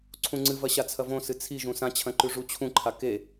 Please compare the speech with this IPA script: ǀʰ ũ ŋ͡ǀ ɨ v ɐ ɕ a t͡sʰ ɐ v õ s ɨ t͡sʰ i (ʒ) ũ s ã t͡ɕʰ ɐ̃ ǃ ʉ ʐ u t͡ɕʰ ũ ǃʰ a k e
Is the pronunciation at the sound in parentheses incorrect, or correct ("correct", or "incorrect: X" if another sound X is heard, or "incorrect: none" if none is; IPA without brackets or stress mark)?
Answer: correct